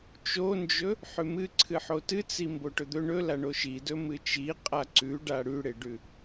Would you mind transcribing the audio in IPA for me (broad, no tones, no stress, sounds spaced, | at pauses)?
t͡ʃ o n d͡ʒ ɵ | ħ ʉ m ɨ ǀʰ ɨ ħ o t ɨ t͡s i m b o ʈ ɵ d̪ ɵ ɳ ɵ l a ɳ o ʃ i d ɵ m ɨ t͡ʃ i qʼ a ǀ ʉ ɖ a ɽ ʉ ɽ e ɖ ʉ